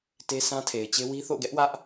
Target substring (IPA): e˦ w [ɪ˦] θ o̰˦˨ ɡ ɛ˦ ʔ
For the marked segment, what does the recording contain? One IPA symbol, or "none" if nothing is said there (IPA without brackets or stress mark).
i˦